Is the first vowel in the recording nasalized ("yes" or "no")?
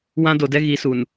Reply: yes